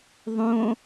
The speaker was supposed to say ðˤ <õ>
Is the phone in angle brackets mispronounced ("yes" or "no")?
no